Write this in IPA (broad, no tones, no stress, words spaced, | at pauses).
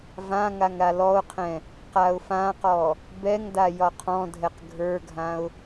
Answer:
vãŋaŋ ɾalɔʊ̯qʰɛ̃ | qaʊ̯fãqɔ | bɛŋda jɒqʰɔ̃dʱɛq ɡʱə˞ɡʱãʊ̯